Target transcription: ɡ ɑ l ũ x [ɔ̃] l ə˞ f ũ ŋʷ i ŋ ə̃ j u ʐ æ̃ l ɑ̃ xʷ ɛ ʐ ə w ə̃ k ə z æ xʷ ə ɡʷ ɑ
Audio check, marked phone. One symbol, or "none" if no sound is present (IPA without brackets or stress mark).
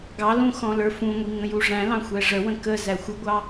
ɔ̃